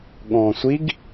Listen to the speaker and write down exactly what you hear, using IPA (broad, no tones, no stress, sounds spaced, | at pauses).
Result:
ɠ ɔ̃ː sʷ i ɡ